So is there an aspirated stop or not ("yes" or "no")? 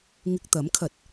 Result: yes